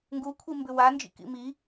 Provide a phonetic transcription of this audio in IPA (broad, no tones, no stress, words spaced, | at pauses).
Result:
ŋɡukʷʰimbʏ wand͡ʒḭkḭ mi